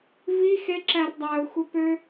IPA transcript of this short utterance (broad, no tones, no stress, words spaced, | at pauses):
vi xeǁær dˤæʊ̯xʷe pø